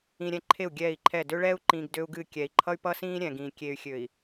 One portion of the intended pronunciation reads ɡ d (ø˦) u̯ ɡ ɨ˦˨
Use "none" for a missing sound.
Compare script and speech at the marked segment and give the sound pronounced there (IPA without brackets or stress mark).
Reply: ø˦